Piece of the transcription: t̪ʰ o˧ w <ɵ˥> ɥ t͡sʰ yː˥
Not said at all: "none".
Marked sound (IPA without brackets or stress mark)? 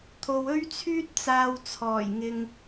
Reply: ɵ˥